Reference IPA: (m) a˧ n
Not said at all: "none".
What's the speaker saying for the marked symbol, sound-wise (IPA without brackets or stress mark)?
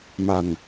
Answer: m